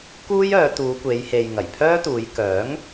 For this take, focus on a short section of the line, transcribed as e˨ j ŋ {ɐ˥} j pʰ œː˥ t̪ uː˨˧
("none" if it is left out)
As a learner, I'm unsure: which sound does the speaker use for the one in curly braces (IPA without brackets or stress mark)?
ɐ˨˩